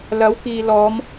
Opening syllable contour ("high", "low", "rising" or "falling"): rising